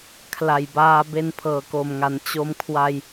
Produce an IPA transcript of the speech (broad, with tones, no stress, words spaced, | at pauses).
kʰla˨˩jbaː˧be˧n pʰɤː˨˩ko˨˩mŋa˩˦n t͡ɕo˧mkʰwa˧j